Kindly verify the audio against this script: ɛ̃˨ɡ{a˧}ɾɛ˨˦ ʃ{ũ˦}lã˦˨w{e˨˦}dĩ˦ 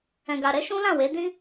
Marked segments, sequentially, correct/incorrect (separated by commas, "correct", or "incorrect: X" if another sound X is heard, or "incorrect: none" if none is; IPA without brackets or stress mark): incorrect: a˨, correct, correct